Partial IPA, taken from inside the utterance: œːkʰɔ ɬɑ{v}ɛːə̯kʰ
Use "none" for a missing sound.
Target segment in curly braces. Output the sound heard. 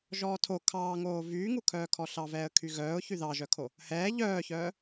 v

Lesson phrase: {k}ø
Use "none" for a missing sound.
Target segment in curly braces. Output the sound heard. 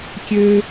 kʲ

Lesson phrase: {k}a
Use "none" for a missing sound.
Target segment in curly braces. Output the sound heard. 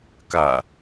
k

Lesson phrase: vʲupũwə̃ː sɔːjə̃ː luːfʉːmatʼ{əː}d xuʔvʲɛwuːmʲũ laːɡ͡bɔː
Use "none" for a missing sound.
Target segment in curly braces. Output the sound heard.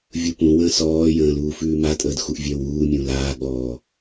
əː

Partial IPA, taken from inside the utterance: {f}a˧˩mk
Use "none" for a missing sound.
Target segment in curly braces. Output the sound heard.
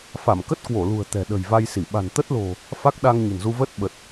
f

